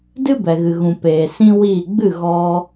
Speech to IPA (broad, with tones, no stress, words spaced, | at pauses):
dɨ˦bɛ˨ɣɨ˨ɣũ˨ peː˨sĩ˦wiː˦˨ ɡ͡bɨ˦˨ɣɔ˧